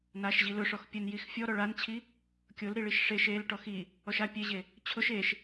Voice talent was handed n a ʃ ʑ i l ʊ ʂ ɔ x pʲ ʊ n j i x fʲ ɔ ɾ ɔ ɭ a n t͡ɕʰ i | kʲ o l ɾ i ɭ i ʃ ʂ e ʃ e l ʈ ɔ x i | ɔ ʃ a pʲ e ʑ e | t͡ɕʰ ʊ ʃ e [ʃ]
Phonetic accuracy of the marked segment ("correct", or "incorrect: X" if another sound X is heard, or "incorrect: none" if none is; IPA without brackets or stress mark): correct